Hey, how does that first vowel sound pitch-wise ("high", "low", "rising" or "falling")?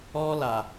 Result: high